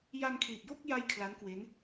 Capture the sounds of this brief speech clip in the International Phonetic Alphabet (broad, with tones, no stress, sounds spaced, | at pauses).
j a˧ n kʰ l i˨˩ t̚ j o˥˩ k̚ j a˥˩ j kʰ l a˦˥ n k w e˦˥ n